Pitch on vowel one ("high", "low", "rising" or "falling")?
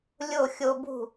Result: falling